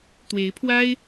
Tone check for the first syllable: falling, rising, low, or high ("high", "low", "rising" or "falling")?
rising